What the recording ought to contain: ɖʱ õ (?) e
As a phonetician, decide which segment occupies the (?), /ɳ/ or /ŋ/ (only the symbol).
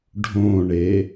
ɳ